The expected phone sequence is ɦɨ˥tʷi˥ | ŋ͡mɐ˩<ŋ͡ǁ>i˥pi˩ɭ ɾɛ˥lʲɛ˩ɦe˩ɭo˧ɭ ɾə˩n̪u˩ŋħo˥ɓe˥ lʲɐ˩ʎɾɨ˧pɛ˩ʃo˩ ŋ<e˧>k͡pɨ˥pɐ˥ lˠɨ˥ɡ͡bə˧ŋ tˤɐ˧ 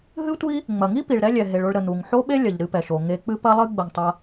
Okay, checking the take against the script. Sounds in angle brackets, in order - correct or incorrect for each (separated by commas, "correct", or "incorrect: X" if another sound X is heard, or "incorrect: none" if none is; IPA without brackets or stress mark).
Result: incorrect: ŋ, correct